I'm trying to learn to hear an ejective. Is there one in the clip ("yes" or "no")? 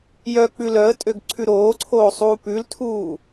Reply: yes